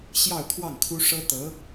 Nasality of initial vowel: oral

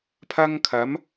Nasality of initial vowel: oral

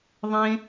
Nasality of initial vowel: nasal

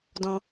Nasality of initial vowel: nasal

